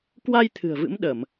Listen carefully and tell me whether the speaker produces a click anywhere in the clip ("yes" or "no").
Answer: no